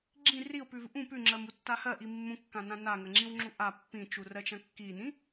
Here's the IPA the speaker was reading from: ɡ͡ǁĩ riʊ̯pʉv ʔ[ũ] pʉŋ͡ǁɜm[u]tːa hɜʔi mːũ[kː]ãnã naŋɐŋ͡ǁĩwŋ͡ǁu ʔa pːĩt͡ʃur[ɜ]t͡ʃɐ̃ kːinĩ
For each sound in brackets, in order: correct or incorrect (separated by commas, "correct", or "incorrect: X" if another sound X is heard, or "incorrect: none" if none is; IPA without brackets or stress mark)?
correct, correct, correct, correct